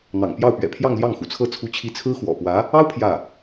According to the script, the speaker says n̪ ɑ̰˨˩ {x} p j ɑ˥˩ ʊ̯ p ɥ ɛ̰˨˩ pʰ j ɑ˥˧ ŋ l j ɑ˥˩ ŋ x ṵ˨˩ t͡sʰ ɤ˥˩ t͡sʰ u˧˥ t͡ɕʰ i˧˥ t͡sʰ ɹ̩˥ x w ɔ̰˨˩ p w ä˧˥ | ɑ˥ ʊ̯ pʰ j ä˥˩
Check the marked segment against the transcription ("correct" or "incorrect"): incorrect